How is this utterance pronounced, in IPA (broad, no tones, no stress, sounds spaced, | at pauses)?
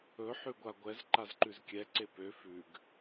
ɵ ħ ʉ ɡʷ a ɡʷ ɛ z ǃ a z ǃ ʉ z kʲ ɛ ǀ e p ø f ʉ ɡ